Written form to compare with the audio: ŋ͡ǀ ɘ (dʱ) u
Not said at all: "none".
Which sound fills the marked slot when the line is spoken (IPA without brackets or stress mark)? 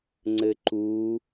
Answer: ǃ